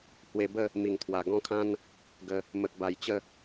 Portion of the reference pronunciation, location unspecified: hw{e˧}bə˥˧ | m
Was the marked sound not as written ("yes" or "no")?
no